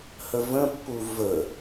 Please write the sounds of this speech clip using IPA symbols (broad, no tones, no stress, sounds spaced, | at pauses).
h ə v ə̃ pː u v ə